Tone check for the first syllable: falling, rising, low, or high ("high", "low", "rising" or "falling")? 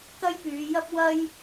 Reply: high